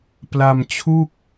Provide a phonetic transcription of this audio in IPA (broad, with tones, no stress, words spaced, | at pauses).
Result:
pla˧mt͡ɕʰu˥˩k̚